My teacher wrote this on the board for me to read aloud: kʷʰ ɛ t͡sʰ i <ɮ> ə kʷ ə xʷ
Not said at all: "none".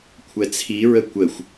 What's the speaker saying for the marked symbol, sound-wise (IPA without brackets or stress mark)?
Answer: ɹ